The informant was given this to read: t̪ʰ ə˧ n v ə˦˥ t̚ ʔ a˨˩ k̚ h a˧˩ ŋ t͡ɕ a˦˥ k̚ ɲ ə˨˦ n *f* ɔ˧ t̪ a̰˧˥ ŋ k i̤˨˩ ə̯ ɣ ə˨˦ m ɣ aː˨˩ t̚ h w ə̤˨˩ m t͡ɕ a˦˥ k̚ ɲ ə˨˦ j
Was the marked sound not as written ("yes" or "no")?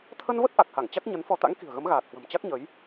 no